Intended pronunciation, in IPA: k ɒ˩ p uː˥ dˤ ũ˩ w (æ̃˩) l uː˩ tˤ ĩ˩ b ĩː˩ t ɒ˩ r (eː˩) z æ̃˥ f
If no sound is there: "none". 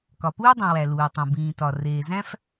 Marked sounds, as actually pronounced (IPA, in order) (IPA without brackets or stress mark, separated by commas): æ˩, eː˩